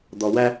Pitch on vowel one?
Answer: low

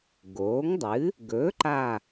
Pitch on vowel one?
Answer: rising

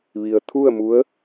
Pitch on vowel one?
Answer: low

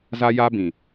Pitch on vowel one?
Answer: high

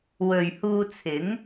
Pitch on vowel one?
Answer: low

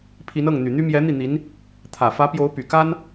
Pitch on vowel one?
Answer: rising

